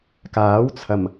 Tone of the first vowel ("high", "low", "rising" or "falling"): rising